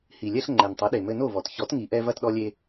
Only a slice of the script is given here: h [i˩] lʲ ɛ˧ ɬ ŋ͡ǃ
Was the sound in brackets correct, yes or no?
yes